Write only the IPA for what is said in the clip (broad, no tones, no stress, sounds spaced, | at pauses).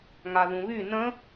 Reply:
ŋ a ð ũ β y n ə̃